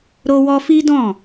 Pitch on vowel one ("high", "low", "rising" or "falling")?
high